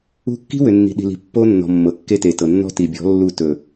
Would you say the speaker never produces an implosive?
no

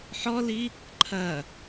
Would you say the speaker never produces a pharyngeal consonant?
no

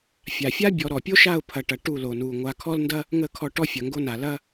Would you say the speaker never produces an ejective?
yes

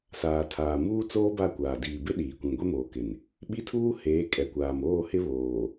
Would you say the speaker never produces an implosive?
no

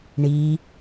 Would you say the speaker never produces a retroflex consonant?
no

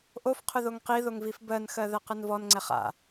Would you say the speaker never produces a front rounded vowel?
yes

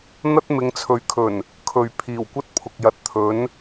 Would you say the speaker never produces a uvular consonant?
yes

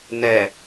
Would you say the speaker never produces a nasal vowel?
yes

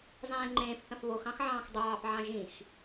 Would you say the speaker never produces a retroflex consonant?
yes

